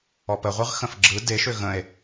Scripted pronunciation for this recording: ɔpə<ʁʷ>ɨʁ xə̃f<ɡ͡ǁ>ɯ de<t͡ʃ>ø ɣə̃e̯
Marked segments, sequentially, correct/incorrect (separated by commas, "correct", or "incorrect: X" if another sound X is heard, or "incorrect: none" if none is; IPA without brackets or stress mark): correct, correct, incorrect: ʃ